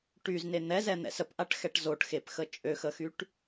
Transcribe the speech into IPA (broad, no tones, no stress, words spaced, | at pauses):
ʈyzne n̪ɛzɛn̪ɛ̰s əpʔaʈxɛʈ zoʈxepxə t͡ʃʼøxəxyʈ